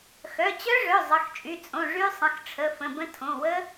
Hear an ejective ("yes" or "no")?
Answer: yes